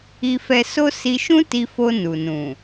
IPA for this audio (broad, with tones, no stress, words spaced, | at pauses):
i˧fɛ˧so˦ si˧ʃũ˦ti˧fo˧ nu˨nũ˨